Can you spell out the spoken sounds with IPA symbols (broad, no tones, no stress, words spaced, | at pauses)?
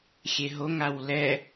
xʲeɦoŋ awlɛ